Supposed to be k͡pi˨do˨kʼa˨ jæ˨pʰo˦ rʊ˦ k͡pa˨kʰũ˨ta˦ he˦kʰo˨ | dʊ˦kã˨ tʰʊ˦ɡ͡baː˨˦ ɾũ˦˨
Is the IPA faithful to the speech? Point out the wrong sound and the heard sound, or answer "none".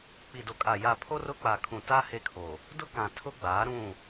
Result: æ˨ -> a˨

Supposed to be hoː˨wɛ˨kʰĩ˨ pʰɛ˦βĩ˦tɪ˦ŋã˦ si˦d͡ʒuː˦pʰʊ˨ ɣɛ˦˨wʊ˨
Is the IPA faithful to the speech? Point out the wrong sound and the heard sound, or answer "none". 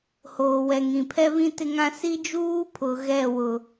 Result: kʰ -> ŋ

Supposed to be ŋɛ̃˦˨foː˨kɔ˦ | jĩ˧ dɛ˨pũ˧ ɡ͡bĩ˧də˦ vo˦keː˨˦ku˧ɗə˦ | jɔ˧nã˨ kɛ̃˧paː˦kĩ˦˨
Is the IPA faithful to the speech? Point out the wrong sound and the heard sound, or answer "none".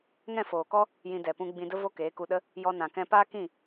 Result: none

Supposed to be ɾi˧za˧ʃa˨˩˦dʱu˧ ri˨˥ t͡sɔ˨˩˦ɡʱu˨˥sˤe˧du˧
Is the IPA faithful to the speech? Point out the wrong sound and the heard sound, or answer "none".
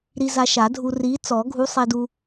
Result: none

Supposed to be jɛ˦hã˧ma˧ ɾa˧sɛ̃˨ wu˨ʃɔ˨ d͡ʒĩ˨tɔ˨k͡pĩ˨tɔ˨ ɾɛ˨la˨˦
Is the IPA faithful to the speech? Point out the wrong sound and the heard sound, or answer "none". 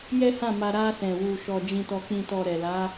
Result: ã˧ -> ã˦˨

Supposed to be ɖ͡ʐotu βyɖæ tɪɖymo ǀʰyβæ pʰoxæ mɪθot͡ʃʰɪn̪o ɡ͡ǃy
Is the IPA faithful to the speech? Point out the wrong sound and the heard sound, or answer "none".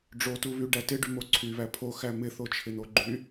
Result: none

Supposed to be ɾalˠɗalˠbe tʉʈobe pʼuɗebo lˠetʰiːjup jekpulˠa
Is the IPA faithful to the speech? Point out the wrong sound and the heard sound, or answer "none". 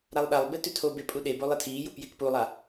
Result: ʈ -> tʰ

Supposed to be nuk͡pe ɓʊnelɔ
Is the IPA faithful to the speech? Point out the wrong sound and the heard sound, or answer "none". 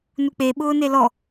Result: ʊ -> ʊː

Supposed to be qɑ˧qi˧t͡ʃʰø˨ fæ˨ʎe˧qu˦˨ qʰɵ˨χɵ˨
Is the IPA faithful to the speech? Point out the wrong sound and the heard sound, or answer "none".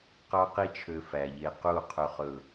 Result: none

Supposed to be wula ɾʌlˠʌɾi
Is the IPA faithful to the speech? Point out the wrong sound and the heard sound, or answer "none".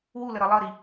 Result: a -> ə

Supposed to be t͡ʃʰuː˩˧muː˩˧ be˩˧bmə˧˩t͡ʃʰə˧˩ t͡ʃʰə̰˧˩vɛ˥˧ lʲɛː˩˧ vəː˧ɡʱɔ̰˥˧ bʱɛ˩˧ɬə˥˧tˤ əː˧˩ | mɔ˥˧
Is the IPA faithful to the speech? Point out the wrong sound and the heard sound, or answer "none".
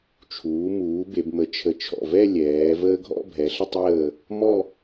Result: ə̰˧˩ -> ɔ̰˧˩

